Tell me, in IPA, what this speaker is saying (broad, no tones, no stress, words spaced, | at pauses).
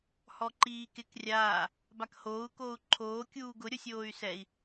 hɔǃiːkɪk rʲaː | bakhoːu̯ koːu̯ǃʰoː kʲuːɡʊ ɾʲosʲoːy̯sɛi̯